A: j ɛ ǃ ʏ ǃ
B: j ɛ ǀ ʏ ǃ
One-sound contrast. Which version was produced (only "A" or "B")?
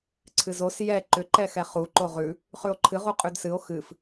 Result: A